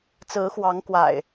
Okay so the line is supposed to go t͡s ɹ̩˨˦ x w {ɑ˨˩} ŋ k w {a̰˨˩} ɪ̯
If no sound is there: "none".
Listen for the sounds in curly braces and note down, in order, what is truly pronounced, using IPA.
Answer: ɑ˨˦, a̰˨˩

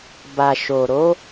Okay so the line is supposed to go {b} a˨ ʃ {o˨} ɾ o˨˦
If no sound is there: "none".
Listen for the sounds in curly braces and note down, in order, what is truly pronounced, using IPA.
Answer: b, o˨

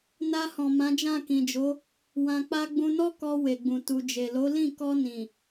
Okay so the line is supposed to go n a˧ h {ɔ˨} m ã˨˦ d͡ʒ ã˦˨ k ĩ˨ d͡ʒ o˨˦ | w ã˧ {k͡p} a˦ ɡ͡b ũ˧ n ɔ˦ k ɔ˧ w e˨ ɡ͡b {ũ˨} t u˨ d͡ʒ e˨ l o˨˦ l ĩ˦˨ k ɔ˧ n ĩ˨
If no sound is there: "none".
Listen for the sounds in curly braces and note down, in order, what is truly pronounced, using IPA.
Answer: ɔ̃˨, k͡p, ũ˨

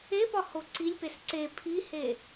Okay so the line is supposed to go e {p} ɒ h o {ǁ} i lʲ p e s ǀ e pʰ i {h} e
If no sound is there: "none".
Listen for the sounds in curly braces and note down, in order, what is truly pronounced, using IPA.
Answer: p, ǀ, h

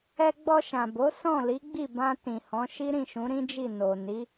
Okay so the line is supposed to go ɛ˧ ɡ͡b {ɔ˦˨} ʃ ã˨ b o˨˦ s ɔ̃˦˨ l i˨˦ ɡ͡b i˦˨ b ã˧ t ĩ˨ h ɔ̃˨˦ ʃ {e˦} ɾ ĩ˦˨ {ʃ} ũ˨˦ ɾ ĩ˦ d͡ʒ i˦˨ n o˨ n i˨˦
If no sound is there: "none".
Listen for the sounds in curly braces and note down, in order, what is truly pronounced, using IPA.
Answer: ɔ˧, i˦, ʃ

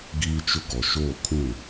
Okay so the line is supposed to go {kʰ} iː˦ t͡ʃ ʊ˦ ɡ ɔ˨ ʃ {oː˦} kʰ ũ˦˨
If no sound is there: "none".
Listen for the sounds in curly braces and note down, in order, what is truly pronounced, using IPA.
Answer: ɡ, oː˦˨

